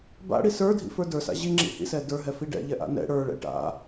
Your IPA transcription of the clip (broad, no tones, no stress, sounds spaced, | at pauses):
b a̰ ɽ i s ə˞ dʱ ḭ f ə˞ d ə˞ s a̰ ʑ i ŋ͡ǁ ḭ h ḭ s ɛ d ə˞ ɦ ɛ f i ɖ ɛ̰ ʎ ɛ ʔ a̰ n ɛ̰ ɽ ə˞ ɭ ɛ̰ ʈ a̰